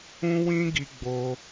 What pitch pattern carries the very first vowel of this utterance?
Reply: high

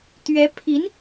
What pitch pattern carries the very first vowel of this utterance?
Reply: rising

